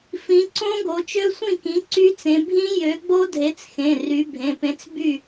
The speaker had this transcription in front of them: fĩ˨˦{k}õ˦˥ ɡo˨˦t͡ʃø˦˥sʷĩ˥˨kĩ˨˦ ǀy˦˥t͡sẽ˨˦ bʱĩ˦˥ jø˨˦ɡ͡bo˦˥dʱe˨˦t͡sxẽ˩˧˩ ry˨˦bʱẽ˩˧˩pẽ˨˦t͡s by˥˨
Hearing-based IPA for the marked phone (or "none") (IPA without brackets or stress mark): ǀ